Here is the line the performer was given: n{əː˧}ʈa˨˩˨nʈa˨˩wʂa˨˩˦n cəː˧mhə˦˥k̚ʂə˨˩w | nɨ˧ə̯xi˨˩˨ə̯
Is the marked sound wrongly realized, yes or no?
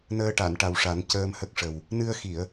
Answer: no